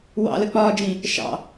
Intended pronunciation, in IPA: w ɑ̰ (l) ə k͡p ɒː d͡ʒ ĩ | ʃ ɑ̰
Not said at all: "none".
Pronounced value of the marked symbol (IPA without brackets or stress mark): l